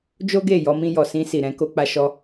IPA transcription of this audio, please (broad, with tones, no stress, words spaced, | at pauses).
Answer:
d͡ʒo˦ ɡe˦˨ jɔ˧mĩ˧jɔ˨ sĩ˧si˨ɾɛ̃˧ ko˧k͡pa˧ ʃɔ˧